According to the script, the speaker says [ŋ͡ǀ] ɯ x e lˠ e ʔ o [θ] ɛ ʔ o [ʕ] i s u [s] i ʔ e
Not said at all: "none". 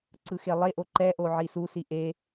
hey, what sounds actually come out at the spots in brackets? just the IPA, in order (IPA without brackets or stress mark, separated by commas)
ǀ, ǃ, ʕ, s